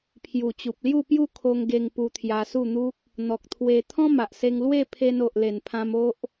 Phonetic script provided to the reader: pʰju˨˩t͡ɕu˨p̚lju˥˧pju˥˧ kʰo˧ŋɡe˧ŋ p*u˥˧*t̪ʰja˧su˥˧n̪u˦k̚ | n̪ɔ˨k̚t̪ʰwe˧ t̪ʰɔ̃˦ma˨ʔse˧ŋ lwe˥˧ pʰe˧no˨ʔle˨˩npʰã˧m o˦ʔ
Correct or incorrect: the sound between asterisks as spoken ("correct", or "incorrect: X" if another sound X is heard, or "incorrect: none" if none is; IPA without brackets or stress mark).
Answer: incorrect: u˧